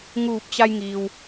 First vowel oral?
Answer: yes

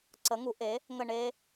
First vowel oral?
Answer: yes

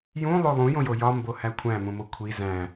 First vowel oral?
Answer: no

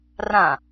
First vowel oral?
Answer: no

